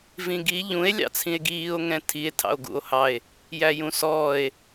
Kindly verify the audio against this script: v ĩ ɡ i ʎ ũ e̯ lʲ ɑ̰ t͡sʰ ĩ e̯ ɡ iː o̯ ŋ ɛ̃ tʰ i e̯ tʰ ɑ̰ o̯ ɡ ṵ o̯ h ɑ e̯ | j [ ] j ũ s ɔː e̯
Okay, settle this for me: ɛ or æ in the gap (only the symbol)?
æ